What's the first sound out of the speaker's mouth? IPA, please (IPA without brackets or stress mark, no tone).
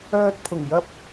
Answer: œː